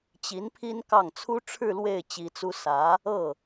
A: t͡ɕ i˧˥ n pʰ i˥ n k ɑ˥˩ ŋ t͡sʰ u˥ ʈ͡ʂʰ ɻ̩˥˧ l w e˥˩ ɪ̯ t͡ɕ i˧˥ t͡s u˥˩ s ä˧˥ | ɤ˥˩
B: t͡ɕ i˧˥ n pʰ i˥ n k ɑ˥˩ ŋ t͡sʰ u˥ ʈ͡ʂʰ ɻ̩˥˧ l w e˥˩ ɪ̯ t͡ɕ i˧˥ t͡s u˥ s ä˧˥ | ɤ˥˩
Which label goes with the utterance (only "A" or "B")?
B